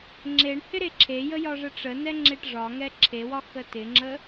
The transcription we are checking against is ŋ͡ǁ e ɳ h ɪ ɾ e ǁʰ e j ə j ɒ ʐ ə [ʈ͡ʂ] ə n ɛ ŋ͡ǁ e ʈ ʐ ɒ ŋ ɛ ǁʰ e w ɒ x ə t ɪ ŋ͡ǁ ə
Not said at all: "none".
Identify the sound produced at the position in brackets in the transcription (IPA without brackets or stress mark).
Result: ʈ͡ʂ